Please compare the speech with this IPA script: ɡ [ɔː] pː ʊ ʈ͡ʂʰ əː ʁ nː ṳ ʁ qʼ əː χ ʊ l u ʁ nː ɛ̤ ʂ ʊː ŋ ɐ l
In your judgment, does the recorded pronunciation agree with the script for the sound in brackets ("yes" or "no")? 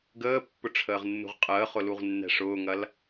no